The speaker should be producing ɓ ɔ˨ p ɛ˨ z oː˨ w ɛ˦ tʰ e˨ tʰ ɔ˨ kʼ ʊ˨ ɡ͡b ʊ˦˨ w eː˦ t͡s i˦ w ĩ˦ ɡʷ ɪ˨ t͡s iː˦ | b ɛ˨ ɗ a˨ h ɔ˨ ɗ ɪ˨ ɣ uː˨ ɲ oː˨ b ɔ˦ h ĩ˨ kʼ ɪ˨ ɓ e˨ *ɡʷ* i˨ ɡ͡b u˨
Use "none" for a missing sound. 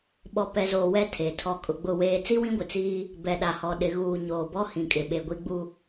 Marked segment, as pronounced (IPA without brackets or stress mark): ɡʷ